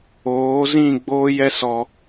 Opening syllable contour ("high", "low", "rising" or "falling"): rising